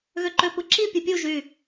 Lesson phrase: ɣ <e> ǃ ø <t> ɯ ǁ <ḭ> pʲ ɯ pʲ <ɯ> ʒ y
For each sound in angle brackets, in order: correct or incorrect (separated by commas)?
incorrect, incorrect, incorrect, incorrect